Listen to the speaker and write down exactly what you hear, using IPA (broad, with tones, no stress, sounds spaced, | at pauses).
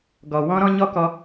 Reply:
ɡ ɔ˨ w ɔ̃˦ ɾ ɔ̃˦ ɲ ɔ˦ k ɔ˧